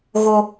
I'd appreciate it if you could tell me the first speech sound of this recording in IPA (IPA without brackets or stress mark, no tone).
ɣ